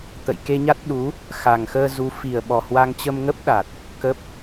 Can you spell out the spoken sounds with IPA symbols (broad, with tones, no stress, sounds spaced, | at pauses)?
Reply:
t̪ ə̰˧˨ j k e˧ ɲ a˦˥ t̚ ɗ u˨˦ | x a˨˩ ŋ x əː˧ z u˨˦ f i˨˩ ə̯ ɓ ɔ˨˩ h w a˧ ŋ t͡ɕ ə˧ m ŋ ə˦˥ p̚ ɗ a˨˩ t̚ | k ə˦˥ p̚